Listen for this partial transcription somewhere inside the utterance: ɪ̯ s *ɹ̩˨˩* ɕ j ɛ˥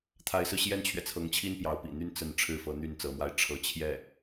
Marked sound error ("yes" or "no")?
yes